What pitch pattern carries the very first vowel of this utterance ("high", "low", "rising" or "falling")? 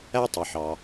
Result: high